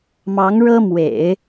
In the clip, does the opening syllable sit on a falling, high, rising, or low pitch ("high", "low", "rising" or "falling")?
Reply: rising